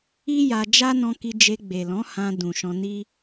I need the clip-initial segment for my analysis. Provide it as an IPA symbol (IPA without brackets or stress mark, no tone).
i